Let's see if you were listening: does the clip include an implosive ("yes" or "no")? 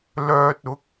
no